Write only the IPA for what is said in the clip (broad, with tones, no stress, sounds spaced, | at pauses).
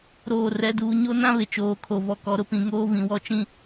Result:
ɾ oː˦˨ r ɛ˦ d uː˦ ɲ o˦ n ã˦ β ɪ˨ t͡ʃ oː˨ kʰ o˨ v ɔ˨ k ɔ˨ ɾ ʊ˦ p ĩ˨ ŋ oː˦ v ĩ˨ w ɔ˦ t͡ʃ ĩ˦